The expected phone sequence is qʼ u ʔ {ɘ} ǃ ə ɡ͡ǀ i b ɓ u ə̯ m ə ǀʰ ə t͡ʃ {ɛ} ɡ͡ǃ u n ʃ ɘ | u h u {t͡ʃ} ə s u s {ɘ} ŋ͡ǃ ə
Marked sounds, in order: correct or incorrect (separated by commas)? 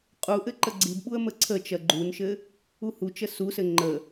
correct, incorrect, correct, correct